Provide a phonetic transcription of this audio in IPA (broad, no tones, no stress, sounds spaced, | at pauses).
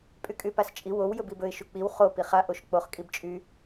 pʼ y kʼ y p a s t͡ʃʼ i w o w j ɵ b i b ɵ ɪ̯ ʃ u k͡p i w χ o p i χ a ʔ o ʃ k͡p o χ kʼ i b t͡ʃʼ y